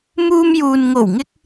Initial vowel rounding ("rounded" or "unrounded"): rounded